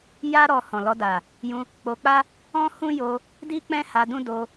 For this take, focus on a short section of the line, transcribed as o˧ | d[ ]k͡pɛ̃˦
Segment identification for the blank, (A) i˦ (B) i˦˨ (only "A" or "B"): A